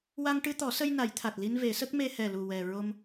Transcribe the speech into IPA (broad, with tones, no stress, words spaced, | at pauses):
wa˧ŋʈɨ˧t̪ɔ˨˩˦sə˧j na˨˩˦jt̪ʰa˨˩t̚ li˧nve˨˩˦sə˦˥k̚ me˧hɛ˨˩lu˨˩ wɛ˨˩ ɹo˧m